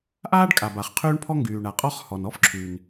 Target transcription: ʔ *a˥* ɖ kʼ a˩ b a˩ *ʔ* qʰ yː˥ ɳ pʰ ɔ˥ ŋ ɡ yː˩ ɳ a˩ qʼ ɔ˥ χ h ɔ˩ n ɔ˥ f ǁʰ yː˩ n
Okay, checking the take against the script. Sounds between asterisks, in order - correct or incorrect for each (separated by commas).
incorrect, incorrect